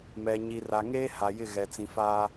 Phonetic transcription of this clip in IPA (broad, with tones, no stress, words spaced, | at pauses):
mɛ˨ ɲi˨ra˨ŋeː˦ ha˨jɪ˦˨ɣɛ˨ t͡sĩ˨faː˦